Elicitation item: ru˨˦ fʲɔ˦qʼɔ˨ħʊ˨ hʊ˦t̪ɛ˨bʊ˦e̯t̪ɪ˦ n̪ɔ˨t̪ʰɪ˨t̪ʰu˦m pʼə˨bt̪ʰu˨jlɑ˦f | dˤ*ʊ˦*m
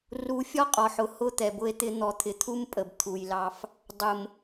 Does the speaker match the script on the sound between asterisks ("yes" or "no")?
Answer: no